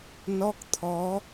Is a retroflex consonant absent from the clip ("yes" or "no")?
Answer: yes